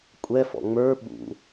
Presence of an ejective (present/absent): present